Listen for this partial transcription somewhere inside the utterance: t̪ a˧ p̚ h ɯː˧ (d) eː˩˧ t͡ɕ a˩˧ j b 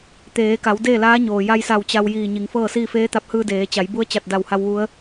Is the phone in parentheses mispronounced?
no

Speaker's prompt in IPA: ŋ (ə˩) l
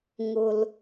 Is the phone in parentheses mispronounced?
yes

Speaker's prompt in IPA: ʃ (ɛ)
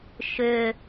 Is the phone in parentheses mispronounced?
yes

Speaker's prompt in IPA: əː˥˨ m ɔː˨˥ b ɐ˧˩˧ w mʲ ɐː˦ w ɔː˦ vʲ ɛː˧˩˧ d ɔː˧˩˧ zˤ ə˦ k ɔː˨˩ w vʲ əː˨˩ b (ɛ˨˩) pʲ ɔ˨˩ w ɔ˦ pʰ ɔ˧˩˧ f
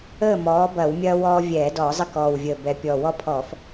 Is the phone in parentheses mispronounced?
no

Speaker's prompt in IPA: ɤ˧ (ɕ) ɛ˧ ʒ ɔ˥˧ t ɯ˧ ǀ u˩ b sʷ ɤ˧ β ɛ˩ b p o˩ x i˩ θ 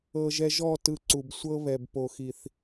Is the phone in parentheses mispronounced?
yes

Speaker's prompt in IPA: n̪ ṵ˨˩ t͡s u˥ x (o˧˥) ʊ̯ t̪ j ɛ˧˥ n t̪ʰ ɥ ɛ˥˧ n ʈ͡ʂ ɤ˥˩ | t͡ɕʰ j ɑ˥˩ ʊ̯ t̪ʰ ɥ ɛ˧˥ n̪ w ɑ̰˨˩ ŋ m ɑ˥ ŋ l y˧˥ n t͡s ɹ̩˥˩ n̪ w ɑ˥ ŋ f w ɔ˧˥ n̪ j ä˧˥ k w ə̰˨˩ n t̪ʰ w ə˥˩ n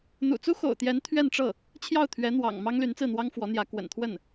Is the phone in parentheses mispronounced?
yes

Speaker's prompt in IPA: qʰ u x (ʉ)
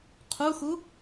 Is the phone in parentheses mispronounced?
yes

